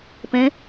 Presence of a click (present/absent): absent